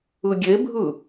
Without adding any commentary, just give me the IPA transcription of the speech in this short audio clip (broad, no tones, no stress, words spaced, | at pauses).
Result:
ɯɡʲebʱɯ